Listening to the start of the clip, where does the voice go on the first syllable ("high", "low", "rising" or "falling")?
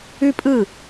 high